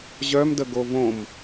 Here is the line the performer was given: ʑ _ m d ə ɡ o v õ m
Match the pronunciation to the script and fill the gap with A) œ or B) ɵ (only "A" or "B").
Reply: A